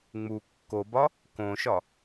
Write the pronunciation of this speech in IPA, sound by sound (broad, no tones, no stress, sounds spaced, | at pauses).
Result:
ŋ͡m u kː o b ɒ | k õ ʃ ɒ